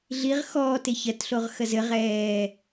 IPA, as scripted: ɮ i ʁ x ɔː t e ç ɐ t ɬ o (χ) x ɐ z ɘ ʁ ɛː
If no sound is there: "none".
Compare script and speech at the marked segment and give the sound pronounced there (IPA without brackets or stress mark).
ʁ